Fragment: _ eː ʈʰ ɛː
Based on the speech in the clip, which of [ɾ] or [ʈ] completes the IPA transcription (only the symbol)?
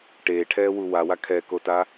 ʈ